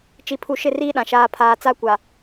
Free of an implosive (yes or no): no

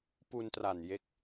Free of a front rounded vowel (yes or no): yes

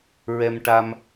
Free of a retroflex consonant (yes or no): no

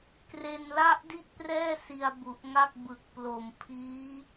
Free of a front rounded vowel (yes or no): yes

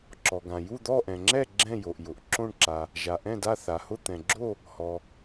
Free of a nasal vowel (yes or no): no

